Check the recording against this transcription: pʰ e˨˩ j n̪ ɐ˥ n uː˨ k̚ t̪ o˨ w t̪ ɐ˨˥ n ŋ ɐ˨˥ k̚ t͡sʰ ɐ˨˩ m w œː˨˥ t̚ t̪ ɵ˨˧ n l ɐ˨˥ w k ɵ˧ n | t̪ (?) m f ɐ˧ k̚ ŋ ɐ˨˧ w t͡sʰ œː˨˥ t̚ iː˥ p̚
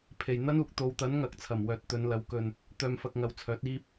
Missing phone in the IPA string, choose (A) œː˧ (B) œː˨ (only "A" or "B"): A